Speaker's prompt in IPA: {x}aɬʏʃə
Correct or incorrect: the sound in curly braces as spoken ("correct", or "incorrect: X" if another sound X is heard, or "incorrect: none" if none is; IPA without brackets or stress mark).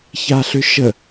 incorrect: ç